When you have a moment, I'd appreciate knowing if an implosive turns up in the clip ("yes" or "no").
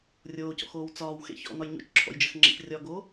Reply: no